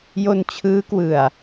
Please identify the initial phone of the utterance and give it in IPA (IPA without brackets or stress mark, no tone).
j